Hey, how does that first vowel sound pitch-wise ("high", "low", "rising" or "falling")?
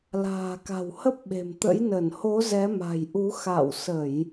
low